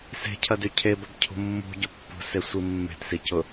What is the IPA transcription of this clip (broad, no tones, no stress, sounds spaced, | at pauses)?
s e̤ cʰ ɐ d y cʰ e b ɐ b cʰ ṳ mː ṳ ɟ ʊ pː ṳ s e sʷ i mː e̤ t s i c ʊ